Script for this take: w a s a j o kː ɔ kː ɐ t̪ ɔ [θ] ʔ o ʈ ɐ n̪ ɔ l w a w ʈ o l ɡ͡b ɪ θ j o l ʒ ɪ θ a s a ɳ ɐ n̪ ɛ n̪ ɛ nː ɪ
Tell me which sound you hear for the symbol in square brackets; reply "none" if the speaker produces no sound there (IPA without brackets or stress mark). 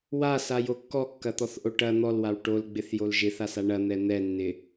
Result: θ